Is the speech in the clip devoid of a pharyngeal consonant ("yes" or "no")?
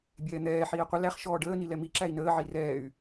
no